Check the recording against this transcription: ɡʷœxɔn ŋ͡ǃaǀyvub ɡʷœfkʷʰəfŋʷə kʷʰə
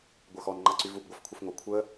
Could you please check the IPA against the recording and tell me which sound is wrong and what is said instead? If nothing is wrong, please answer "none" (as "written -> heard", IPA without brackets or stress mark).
none